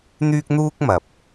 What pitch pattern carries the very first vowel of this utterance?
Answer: high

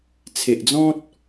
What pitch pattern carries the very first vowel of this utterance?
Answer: low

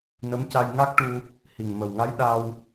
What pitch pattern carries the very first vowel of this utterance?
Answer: rising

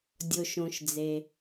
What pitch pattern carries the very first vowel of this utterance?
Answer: low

